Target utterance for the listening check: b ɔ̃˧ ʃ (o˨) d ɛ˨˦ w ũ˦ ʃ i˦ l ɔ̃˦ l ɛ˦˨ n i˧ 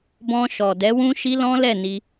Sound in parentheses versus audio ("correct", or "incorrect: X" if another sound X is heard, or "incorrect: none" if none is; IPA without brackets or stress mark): incorrect: ɔ˨